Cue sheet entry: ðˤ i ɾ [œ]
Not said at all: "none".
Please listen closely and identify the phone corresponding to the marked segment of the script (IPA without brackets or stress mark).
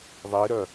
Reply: œ